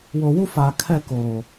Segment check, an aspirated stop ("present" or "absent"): present